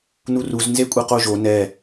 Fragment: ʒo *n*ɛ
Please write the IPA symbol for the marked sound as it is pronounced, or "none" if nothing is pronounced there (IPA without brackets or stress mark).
n